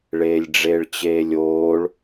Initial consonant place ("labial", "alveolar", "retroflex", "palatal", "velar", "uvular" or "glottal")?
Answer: retroflex